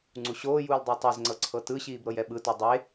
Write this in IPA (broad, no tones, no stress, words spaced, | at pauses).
ŋ͡ǀuɕoːjuːl dˤutˤezŋ͡ǀɤ ǀʰɤtɯɕiːb ɾɤjɛɓɯtu dˤe